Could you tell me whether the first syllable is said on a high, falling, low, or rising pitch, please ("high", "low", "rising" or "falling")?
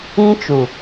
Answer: high